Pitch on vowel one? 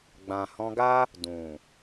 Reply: low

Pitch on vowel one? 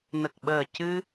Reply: low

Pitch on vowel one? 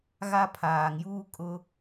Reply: high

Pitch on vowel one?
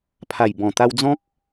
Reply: low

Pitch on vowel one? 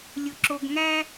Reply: low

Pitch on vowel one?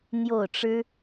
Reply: falling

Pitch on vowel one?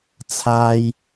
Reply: high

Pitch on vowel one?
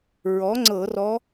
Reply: rising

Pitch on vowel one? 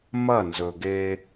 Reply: falling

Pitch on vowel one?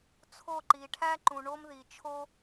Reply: falling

